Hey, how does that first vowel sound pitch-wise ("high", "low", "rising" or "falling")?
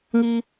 high